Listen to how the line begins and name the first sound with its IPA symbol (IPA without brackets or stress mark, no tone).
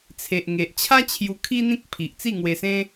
t͡sʰ